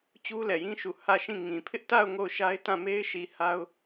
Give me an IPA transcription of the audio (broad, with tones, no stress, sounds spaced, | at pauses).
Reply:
t͡ɕ u˦ l ɛ˨ j ĩ˦ ʃ u˨ h ä˦˨ ʃ ĩ˦˨ ŋ ĩ˨ pʰ ɪ˦ ʔ t a˦˨ ʊ̯ ŋ o˦˨ ʊ̯ ʃ a˦ ɪ̯ t ã˦˨ m e˦ ɪ̯ ʃ i˨ h a˦ ʊ̯